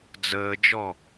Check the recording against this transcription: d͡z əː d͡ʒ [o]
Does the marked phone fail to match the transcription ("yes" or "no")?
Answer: yes